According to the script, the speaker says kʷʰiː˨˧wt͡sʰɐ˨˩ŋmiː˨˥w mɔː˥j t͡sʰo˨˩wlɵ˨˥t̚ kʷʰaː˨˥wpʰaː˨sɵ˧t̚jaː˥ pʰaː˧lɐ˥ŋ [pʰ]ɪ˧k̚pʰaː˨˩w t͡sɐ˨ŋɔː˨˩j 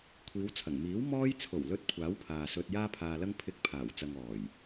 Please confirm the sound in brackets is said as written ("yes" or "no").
yes